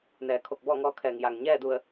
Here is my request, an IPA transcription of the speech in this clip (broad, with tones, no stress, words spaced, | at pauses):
nɛː˩˧kʰo˧˩k̚ bɔː˥˨ŋɔː˧˥kʰɛː˩ŋ ja˩ŋ ɲɛː˥˨du˧˩ə̯